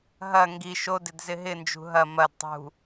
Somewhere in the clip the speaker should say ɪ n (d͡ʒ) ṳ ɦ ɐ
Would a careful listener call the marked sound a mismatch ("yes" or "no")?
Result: no